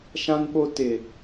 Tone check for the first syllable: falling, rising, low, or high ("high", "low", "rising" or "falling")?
high